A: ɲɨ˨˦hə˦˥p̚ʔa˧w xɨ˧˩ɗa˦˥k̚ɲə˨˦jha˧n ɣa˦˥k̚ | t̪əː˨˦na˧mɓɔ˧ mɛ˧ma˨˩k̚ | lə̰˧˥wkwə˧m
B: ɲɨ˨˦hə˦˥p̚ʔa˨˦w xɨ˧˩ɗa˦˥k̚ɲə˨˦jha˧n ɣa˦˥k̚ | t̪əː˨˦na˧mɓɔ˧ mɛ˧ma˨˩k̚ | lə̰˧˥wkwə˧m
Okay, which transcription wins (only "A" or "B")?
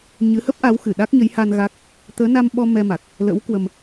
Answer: B